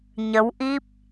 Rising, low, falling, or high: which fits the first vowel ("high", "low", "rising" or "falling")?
rising